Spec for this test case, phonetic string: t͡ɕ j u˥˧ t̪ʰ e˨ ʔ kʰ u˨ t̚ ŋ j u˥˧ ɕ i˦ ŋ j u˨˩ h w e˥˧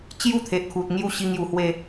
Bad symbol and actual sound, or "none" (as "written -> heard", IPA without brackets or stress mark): none